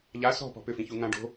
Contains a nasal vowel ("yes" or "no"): yes